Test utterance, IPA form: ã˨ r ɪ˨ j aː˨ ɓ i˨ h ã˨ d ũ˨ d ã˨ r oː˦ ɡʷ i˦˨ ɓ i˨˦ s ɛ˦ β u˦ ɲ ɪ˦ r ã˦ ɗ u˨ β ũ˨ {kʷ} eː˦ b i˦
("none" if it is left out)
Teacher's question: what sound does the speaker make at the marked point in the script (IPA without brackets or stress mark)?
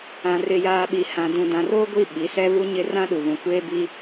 kʷ